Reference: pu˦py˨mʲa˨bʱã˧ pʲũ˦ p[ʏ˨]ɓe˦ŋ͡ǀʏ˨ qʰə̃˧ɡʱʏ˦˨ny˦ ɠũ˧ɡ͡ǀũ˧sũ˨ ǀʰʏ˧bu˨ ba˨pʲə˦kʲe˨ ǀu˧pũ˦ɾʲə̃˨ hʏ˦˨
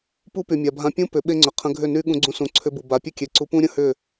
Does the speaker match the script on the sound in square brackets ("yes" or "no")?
no